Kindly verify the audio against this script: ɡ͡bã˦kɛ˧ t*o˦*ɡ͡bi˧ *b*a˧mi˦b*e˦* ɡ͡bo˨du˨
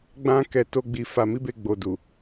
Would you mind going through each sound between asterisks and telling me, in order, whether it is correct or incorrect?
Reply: correct, incorrect: f, incorrect: e˧

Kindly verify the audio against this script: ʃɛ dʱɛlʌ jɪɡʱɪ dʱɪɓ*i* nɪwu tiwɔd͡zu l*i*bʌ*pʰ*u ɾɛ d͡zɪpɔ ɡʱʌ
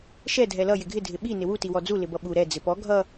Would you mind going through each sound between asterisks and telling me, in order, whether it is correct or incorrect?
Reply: correct, incorrect: ɪ, incorrect: ɓ

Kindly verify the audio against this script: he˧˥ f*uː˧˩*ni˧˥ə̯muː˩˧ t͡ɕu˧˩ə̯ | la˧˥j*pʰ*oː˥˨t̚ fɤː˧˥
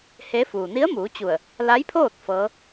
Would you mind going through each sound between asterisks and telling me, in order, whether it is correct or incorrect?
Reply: incorrect: uː˩, correct

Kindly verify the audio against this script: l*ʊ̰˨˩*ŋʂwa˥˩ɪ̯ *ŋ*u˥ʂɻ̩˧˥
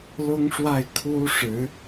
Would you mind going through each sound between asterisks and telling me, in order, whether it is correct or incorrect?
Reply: incorrect: ʊ˥, incorrect: kʰ

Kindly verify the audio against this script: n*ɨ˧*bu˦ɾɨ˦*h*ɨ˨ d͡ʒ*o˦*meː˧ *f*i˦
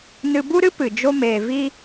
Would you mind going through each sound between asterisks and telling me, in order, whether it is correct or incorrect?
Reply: correct, incorrect: p, correct, incorrect: v

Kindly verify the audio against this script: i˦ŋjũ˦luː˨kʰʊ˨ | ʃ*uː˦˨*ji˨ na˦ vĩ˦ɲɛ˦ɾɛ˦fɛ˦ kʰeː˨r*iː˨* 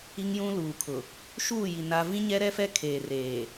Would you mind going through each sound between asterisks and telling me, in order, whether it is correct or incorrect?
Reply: correct, incorrect: eː˨

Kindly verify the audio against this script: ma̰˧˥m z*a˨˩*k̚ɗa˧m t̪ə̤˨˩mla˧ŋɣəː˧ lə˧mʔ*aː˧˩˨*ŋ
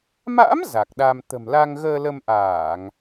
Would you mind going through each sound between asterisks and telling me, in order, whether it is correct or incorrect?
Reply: correct, correct

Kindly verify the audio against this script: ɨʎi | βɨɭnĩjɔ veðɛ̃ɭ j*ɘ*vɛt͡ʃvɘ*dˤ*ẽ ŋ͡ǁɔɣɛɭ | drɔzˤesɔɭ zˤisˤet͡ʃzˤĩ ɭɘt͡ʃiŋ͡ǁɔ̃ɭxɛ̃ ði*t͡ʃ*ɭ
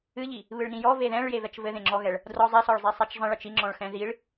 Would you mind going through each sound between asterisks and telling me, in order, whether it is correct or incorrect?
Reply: incorrect: e, incorrect: ð, incorrect: none

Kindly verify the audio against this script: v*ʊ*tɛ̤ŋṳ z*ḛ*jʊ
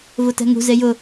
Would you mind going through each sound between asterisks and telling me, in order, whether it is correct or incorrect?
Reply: correct, incorrect: e

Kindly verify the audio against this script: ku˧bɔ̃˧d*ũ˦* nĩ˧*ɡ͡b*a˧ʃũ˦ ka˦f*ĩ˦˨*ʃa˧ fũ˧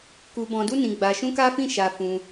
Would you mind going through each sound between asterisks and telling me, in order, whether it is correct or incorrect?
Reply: incorrect: u˦, correct, correct

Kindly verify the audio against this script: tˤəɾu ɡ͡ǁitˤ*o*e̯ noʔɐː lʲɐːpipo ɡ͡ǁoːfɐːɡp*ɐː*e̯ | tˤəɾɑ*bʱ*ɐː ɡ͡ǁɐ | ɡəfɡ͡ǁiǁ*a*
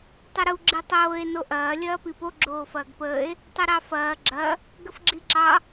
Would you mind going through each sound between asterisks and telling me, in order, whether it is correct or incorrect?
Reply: incorrect: oː, incorrect: əː, incorrect: f, incorrect: ɑ

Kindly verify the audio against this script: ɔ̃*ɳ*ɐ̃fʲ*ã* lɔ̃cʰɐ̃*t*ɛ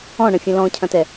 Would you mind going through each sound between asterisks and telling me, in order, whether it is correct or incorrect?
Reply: correct, incorrect: ɐ̃, correct

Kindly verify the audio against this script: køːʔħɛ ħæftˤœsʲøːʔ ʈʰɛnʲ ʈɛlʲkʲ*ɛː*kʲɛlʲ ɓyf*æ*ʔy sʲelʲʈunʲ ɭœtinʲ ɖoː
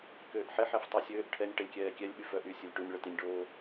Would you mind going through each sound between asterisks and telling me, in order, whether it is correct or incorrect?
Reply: correct, incorrect: œ

